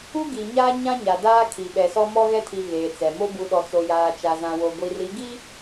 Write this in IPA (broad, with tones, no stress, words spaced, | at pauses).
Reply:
u˦ɡi˨ɲaː˦ ɲã˦ɲa˨ daː˦kʰi˨ɓɛ˨ sɔ˦mɔ˦ɣɛ˦tʰi˨ ɣeː˨t͡sɛ˨mo˦ bu˨ɗɔ˨t͡so˨ jaː˨t͡ʃa˨zã˨wo˨ ɡʷi˨ri˨˦ ɡi˦